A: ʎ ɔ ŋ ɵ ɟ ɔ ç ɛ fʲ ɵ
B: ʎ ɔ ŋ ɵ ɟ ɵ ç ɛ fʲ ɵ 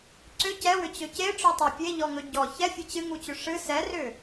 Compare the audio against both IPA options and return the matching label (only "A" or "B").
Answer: A